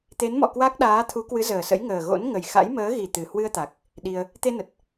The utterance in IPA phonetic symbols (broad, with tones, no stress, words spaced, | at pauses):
t̪e˨˦nmɔ̰˧˨ kwa˦˥k̚ɗaː˨˦t̪ʰu˨˦ kwɨ˨˦zəː˨˩sə̰˧˥j ŋəː˨˩ɣo̰˧˥n ŋə˨˩jxa̰˧˥jməː˨˦ ɣi˨˩ t̪ɨ˨˩ hwɨ˧ə̯t̪a˨˩k̚ | ɗi˧ə̯ | t̪e˧nə˨˩t̚